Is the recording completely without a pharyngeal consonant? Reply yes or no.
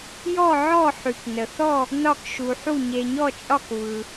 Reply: no